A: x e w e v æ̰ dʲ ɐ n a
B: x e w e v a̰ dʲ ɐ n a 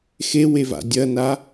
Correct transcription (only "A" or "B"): B